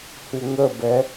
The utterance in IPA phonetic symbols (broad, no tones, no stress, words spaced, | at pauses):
huŋəbɛ